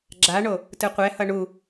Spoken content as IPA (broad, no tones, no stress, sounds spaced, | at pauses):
ɡ͡ǁ a ɳ o | t ɯ qʷ ɛ h ʌ ɳ u